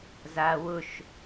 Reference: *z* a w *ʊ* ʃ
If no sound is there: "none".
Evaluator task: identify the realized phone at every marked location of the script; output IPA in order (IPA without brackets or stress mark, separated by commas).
z, ʊ